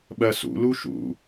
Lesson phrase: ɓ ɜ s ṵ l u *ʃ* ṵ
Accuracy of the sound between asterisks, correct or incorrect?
correct